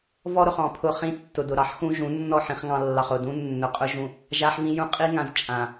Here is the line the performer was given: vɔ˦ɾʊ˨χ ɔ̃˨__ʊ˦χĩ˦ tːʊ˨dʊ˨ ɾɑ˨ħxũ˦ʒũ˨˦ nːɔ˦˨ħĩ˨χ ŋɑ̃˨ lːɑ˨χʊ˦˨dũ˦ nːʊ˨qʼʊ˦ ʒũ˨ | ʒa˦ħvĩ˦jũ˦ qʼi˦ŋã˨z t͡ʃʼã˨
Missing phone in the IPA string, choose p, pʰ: pʰ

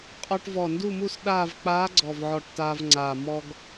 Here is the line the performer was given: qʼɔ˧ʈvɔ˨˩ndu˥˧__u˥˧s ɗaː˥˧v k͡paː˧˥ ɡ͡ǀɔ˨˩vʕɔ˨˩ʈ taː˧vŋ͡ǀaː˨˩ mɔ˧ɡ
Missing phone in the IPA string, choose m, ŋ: m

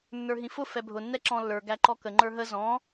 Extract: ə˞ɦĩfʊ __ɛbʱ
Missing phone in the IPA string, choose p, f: f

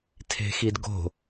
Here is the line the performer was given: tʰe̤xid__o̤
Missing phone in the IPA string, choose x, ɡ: ɡ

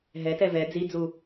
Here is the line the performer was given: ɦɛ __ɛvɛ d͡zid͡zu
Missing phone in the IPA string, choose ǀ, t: t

